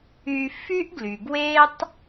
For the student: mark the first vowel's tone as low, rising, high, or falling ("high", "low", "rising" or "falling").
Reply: high